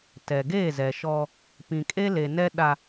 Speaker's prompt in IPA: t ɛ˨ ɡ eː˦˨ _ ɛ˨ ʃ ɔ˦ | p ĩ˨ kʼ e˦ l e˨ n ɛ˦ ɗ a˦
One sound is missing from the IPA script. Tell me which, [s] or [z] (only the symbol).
z